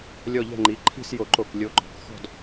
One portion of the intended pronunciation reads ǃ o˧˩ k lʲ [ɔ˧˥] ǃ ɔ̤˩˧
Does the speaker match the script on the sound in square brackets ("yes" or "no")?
no